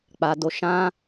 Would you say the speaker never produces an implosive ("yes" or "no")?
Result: yes